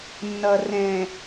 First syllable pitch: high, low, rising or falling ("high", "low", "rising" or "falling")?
low